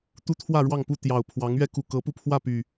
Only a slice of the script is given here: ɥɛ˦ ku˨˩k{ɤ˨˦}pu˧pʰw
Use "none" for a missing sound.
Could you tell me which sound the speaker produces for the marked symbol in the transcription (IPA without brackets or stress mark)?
ɤ˨˦